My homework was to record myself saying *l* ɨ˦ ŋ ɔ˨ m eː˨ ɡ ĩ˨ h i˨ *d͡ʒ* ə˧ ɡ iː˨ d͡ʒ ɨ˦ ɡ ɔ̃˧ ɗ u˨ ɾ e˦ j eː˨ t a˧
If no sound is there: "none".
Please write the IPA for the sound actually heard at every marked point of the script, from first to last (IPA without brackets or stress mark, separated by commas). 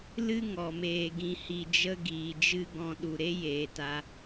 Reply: l, d͡ʒ